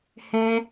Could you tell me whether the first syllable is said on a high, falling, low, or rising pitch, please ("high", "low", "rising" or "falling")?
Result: high